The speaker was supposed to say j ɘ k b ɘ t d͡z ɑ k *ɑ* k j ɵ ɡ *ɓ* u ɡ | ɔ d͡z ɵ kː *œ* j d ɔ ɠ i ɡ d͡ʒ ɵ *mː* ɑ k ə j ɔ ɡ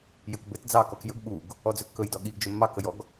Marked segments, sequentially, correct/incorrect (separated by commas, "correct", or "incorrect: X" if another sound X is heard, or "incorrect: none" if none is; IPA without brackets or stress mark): incorrect: ɔ, correct, incorrect: ɵ, correct